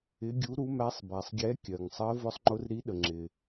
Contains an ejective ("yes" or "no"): no